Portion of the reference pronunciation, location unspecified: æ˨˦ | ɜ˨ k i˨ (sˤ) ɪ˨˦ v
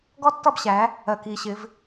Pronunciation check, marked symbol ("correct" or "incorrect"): incorrect